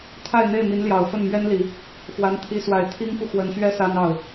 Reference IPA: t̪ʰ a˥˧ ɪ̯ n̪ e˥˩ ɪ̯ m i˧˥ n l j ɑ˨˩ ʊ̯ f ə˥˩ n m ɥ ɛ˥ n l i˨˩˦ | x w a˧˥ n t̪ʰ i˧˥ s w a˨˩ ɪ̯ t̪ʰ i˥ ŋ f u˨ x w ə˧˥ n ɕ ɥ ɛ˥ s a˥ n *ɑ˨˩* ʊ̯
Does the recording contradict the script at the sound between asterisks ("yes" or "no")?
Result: yes